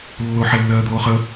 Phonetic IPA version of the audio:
lː o ħ ɛ lː ɜː d̪ oː χ ə

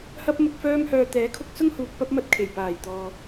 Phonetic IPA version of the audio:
h ɐ˥ p̚ m ʊ˧ k̚ f œː˥ m h œː˧ t̪ ɛː˨˥ kʰ ʊ˧ k̚ s ʊ˥ ŋ h uː˧ k̚ p ɐ˥ p̚ m ɐ˥ t̚ kʰ e˨˩ j p aː˨˩ j t̪ ɔː˨

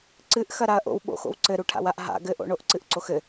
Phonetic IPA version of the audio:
ǀ ɨ ʔ x ɐ ɾ a ɐ̯ ʔ o̰ w ɓ o̰ x o̰ w ǀ ɘ ɾ u ʈʰ a̰ w a ʔ ɦ a̰ ɡ ɘ ʔ o̰ ɳ o ʔ ǀ ɨ ʔ ǀ o x ɘ

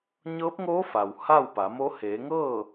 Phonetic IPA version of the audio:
ɲ ɤː˧˥ p̚ ŋ oː˧˥ f a˩ w h a˥˨ w p a˩˧ m o˧˥ h eː˩˧ ŋ ɤː˥˨

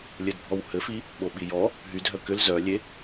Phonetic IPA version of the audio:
lʲ ɘ d bʱ ɔ w h ɘ f i | ɓ o ɓ i j ɔ | ɦ y dʱ œ k ʏ l z œ lʲ e

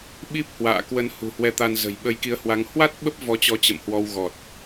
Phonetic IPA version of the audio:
ɓ i˦˥ p̚ h w a̰ː˧˨ k w ə˨˦ n h ṳ˨˩ h w ɛ˧ t̪ a˧ n z ə̤˨˩ j ɓ ə˨˦ j k i˨˦ ə̯ h w a˨˦ ŋ h w a˦˥ t̚ ɓ ə˦˥ p̚ v ɔ˨˦ t͡ɕ ɔ˨˦ t͡ɕ ə̰˧˨ m h w ɔ˧ w ɣ ɔ˨˩ t̚

